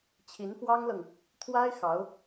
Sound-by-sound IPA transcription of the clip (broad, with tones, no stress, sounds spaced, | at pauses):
t͡ɕʰ i˧˥ n f w ɑ˥ ŋ l ɤ˨ ŋ | t̪ʰ w a˥ ɪ̯ x ɑ˧˥ ʊ̯